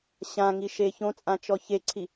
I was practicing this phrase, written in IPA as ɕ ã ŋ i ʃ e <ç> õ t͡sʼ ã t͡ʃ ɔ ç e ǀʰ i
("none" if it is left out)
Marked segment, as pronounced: ç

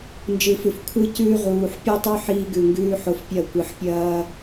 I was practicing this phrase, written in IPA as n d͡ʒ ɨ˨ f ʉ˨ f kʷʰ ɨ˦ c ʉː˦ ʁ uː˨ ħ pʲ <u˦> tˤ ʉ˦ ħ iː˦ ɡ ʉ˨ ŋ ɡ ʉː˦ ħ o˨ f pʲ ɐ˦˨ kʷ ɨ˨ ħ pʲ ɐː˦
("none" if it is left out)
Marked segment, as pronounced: u˦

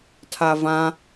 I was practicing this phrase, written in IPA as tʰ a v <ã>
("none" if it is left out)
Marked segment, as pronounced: ã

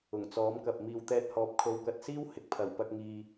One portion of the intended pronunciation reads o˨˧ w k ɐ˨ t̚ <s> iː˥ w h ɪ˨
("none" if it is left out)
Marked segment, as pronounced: s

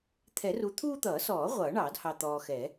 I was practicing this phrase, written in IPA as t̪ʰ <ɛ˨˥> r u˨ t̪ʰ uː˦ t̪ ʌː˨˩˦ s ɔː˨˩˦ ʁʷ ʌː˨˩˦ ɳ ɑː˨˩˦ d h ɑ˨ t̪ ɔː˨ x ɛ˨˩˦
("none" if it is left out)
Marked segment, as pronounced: ɛ˨˩˦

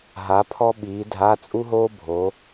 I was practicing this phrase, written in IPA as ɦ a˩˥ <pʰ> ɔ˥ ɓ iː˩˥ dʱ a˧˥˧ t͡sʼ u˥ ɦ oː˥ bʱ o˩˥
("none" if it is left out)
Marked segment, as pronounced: pʰ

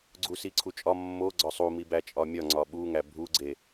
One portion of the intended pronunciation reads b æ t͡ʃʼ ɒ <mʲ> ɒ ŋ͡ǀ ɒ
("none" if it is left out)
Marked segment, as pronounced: mʲ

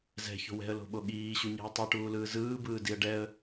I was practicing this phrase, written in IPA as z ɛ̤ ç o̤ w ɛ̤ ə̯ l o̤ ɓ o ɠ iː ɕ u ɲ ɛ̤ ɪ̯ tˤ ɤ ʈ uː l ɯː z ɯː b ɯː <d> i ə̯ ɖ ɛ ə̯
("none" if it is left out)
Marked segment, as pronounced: d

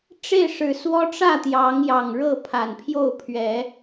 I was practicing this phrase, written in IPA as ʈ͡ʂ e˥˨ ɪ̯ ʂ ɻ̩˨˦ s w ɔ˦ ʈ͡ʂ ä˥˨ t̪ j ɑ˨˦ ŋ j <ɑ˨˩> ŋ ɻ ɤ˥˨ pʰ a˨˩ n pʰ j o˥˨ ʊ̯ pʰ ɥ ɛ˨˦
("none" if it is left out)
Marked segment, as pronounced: ɑ˨˩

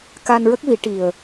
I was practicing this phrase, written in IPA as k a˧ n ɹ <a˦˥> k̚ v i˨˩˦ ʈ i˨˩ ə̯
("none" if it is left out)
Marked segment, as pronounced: ə˦˥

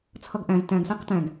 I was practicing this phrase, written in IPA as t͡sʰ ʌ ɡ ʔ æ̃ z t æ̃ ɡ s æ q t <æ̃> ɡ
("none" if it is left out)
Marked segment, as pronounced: æ̃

